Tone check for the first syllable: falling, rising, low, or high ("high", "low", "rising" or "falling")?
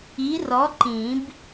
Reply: rising